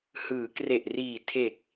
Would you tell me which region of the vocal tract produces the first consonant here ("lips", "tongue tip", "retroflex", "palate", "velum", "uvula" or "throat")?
throat